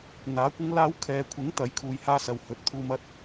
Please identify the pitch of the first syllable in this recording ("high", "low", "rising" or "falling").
rising